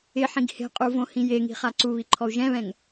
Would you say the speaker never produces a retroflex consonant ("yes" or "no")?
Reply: yes